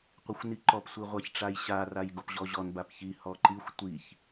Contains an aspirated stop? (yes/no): no